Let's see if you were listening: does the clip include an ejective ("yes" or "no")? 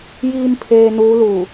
no